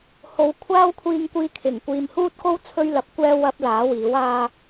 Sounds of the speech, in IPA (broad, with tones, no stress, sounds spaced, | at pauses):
h o˨ w kʷʰ aː˥ w kʷʰ iː˧ ŋ kʷ iː˧ kʰ ɪ˨˩ ŋ kʷ iː˨ m h uː˥ t̚ k o˥ w t͡sʰ ɵ˥ ɥ l ɐ˨˥ p̚ kʷ ɛː˥ w ɐ˥ p̚ l aː˨˥ w iː˨˥ w aː˥